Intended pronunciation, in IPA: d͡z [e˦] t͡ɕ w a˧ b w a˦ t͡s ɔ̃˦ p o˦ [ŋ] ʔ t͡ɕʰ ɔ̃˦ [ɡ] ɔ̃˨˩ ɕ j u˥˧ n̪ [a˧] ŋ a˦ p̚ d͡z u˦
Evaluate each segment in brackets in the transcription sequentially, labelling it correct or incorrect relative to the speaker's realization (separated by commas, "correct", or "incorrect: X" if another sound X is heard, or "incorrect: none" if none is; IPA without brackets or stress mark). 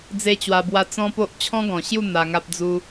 correct, incorrect: none, correct, correct